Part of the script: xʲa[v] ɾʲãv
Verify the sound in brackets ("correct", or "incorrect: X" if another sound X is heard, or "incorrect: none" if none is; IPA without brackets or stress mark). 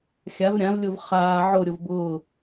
correct